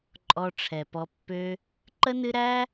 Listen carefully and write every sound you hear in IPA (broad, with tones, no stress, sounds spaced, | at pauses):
ǃʼ ɔ˧ ʈ͡ʂʰ ɛ˨ p ɔ˧ pː ø˦ | ǃ ə˦ n ɨ˦ ɾ æ˦